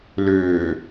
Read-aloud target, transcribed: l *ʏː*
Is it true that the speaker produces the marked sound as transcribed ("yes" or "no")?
yes